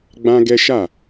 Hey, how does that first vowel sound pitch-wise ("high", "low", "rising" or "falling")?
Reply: high